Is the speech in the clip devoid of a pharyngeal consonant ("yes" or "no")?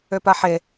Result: no